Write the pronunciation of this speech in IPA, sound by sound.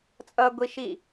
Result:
t͡sʼ ʌ ɡʷ i ʃ i

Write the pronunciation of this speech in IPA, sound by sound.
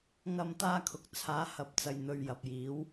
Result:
ŋ ɐ˧ m t̪ aː˧ kʰ ʊ˨ k̚ t͡sʰ aː˨˥ h ɐ˨˥ p̚ t͡s ɐ˨ j n̪ ɵ˨ ɥ j ɐ˨ p̚ j iː˨˧ w

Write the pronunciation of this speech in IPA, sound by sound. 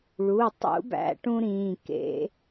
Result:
ɭ u˩˧˩ tˤ ṵ˧˥ b æ̰˧˥ ʈ ũ˥ ɾ ĩː˩˧˩ k ḛ˧˥

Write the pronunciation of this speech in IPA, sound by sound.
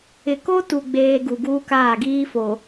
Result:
ɪ˨ k o˦ t u˨ ɡ͡b eː˦ ɡ u˨ ɡ uː˦ k aː˦˨ ɡ iː˦ f o˨

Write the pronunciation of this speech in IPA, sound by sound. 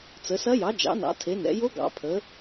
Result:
t͡s ə˩˧ s ɐ˧˥ j ɑ˩˧ d͡ʒ ɑ̰˩˧ n ɑ̰˩˧ tʰ e˩˧ n ɛ̰˩˧ j o˧˥ ɡ ɑ̰˩˧ pʰ ə˩˧

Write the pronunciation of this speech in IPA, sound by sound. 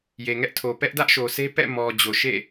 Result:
j e˨ ŋ ɛ˦ ʔ tʰ o˨ p ɛ˦ ʔ d ä˦ ʔ ʃ o˨ s e˦ p ɛ̰˦˨ m ɔ˨ d͡ʑ o˨ ʃ ḛ˦˨

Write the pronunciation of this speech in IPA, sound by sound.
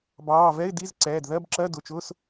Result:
b ɑː˩˧˩ v ɛ˧˥˧ ɪ̯ d i˧˥˧ z ǀ ɛː˩˧˩ d ð ɜ˧˥˧ b ǁ ɜ˧˥˧ d ʊ˩˧˩ t͡ʃ ʊː˧˥˧ s

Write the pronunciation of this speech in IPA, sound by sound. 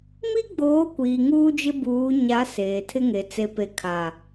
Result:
m i˦ ɡ͡b oː˨˦ kʷ iː˨ ŋ uː˦ d͡ʒ ɪ˦ b uː˨˦ ɲ a˨˦ s eː˨ tʰ ɪ˦ ŋ e˨ t͡s e˨ p e˨ kʰ a˨

